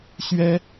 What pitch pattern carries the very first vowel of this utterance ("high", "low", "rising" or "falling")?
high